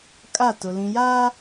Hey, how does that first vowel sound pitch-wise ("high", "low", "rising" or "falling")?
falling